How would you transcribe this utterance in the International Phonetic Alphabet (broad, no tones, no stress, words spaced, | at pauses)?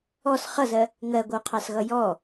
ɔs χʌzɜ | ŋɜɡʷʌu̯qʰɑsɣʌ jɔ